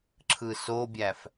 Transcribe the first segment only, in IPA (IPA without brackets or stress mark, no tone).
ǁʰ